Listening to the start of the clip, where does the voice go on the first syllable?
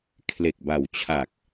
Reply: low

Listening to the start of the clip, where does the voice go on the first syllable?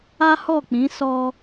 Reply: high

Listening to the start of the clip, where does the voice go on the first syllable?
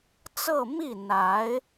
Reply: falling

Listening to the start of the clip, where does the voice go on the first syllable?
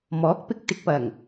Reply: rising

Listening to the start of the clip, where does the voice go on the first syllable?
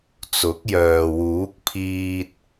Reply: rising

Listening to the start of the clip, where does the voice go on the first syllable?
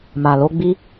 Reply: low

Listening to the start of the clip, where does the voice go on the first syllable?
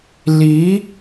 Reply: rising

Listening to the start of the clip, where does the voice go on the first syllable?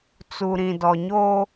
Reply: low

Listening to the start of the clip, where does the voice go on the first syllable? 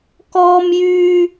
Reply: high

